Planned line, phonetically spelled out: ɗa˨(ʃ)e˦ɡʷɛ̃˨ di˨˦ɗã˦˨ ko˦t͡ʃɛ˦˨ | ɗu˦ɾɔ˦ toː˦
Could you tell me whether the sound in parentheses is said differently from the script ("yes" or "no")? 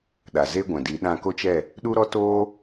yes